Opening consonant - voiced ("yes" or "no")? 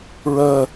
yes